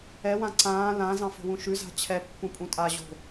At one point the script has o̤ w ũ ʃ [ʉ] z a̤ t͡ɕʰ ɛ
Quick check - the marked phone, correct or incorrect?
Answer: correct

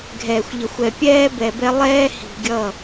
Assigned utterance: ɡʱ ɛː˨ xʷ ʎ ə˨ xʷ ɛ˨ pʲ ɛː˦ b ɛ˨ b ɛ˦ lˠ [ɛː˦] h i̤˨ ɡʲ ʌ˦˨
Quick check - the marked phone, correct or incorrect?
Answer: correct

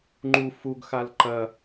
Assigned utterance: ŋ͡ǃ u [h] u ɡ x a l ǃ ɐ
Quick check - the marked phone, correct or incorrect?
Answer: incorrect: f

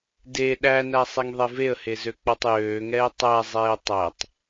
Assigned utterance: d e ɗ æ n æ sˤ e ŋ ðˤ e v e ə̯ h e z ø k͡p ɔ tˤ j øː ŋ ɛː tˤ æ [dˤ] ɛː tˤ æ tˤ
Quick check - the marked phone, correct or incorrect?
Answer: incorrect: zˤ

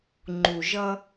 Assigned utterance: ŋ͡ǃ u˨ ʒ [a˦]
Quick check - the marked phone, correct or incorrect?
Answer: incorrect: ʌ˦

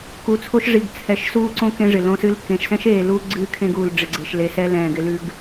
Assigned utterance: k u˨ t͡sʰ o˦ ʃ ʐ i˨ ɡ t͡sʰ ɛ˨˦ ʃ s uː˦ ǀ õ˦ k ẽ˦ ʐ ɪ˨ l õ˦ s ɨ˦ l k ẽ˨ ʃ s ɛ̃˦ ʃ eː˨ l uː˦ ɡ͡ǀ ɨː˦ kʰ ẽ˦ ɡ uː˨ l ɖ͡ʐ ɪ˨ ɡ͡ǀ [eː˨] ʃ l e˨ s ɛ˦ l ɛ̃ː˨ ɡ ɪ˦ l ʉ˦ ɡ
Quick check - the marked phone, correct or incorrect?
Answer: incorrect: e˨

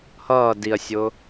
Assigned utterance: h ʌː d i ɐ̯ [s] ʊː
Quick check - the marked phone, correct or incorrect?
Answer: incorrect: sʲ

